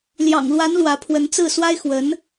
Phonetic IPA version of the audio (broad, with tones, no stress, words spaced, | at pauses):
ljɑ̰˨˩ŋlwa˧˥n lwä˧˥pʰwə˧˥nt͡sɹ̩˥˩ swa˥ɪ̯xwə˧˥n